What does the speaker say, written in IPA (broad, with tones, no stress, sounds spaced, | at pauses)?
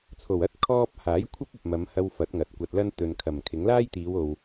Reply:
t͡sʰ o˨˩ w ɐ˥ t̚ kʰ ɔː˥ p̚ h aː˨˥ j kʷʰ ɐ˥ p̚ ɐ˨ p̚ m ɐ˨˧ m h ɐ˧ w f ɐ˨˥ t̚ ŋ ɐ˨ t̚ kʷ ɐ˧ t̚ l ɐ˥ n t̪ ɵ˨ n kʰ ɐ˨˩ m kʰ ɪ˨˥ ŋ l aː˥ j t̪ iː˨˧ w o˨ w